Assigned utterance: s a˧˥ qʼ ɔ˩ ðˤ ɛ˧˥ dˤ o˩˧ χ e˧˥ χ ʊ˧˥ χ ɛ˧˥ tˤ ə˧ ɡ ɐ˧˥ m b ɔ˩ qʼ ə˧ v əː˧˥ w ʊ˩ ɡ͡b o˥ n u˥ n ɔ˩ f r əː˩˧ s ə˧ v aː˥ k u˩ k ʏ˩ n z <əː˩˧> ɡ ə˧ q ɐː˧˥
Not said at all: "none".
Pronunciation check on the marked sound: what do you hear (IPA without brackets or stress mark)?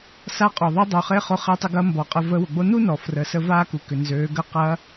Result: øː˩˧